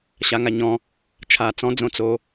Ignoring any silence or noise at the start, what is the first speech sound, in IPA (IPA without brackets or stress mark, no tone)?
ɕ